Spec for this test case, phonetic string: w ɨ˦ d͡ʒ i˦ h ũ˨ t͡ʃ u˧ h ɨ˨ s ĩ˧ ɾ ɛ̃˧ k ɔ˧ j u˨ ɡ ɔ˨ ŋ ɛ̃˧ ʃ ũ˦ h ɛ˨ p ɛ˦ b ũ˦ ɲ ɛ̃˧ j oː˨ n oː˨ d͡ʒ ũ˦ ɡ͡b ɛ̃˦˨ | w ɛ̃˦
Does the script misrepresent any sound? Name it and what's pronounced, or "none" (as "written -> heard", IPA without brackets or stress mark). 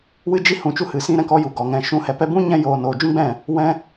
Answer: none